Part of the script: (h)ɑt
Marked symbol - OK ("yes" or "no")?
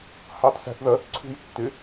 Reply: yes